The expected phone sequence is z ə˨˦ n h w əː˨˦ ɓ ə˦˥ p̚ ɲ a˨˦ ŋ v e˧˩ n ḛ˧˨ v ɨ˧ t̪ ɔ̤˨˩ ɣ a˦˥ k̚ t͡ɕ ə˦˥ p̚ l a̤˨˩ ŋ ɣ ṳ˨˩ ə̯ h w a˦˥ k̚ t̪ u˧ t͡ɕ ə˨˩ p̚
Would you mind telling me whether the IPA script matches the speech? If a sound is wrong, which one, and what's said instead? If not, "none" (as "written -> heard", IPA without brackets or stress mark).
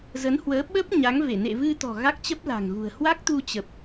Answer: none